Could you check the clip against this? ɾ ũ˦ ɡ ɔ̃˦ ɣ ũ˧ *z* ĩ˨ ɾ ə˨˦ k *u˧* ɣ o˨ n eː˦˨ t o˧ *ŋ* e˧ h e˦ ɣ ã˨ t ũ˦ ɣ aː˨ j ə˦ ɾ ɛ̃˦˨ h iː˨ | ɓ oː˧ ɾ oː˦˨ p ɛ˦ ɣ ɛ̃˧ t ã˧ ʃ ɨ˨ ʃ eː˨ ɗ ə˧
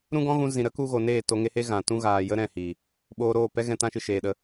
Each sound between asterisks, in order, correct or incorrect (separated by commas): correct, correct, correct